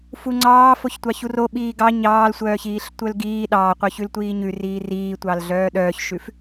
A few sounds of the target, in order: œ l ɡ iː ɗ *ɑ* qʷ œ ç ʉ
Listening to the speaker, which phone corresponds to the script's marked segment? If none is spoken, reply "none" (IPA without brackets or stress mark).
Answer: ɑː